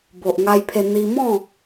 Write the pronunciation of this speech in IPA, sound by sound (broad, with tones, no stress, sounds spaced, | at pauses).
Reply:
b o˨ ʔ ŋ a˧ j pʰ e˧ n̪ i˧ m ɔ̃˥˧